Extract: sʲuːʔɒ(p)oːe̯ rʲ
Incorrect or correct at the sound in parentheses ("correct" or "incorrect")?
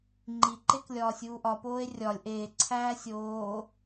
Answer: correct